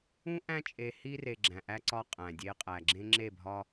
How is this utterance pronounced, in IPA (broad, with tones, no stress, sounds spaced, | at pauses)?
ũ˦ ʔ æ̃˦ t͡ʃʼ e˨ h i˦ r e˨ ɡ͡ǁ æ̃˨ ʔ æ˦ ǀ ɒ˦ qʼ æ̃˨ dʲ e˦ qʼ æ˨ ɡ͡ǁ ẽ˦ ŋ͡ǁ e˦˨ bʱ ɒ˦